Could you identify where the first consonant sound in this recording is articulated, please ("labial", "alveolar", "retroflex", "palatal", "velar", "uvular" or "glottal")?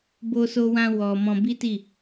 labial